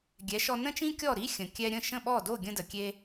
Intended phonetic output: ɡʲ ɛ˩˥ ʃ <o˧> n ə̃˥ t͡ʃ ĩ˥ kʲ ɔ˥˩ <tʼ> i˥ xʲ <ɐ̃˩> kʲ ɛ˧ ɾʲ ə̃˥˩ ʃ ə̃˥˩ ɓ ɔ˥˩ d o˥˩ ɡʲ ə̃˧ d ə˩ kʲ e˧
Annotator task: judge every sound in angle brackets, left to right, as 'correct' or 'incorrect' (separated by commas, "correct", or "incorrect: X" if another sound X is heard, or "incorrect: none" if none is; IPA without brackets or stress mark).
incorrect: ɔ˧, incorrect: ɾ, incorrect: ə̃˩